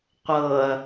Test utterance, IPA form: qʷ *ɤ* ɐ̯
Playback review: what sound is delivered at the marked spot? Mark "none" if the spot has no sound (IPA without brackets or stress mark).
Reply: ɤ